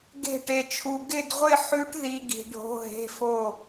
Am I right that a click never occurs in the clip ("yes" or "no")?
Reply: yes